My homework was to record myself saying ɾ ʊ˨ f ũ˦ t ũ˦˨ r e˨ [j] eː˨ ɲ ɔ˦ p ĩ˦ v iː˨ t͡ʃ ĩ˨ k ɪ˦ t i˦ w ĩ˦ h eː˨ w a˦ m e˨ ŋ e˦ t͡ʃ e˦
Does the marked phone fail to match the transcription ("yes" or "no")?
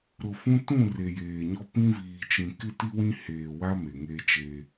no